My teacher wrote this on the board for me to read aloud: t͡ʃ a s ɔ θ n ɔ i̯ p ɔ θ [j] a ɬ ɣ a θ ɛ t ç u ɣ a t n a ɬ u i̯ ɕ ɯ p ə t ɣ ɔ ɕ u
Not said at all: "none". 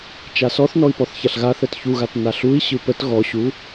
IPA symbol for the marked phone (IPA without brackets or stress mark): ç